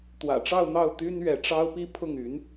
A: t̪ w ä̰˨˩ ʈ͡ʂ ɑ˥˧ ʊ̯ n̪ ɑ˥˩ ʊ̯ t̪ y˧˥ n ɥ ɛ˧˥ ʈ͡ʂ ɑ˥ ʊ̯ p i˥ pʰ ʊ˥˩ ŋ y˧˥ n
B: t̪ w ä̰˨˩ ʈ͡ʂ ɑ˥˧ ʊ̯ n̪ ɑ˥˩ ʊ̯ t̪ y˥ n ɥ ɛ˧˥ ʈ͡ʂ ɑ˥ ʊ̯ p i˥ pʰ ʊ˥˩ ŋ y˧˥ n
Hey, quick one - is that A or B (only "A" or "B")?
B